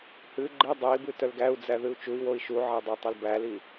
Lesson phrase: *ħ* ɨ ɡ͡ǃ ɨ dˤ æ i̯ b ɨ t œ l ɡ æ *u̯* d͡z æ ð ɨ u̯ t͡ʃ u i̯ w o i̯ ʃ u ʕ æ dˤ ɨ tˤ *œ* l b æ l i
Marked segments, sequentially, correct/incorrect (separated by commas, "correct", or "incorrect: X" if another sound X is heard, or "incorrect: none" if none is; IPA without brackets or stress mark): incorrect: h, correct, correct